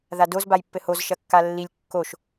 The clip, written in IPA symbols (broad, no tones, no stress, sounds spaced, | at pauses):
ð a d o z b a j pː ɘ h o z ʃ ɐ kː a lː i lʲ kː o ʃ